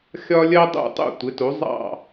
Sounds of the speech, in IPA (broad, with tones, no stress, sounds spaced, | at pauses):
xʲ ɒ˥ lʲ ɜ˥ dˤ ṵ˥˩ tˤ ṵ˥˩ tʷ ɪ˩˥ t u˩˥ zˤ ɑ̰˥˩